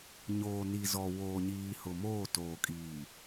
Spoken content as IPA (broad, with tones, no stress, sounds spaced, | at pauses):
ɲ oː˨ n i˨ z ɔ˨ w oː˨ ɲ iː˨ h ʊ˨ m oː˦˨ t oː˨ kʼ iː˨